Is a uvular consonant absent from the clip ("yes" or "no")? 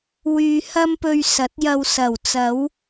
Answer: yes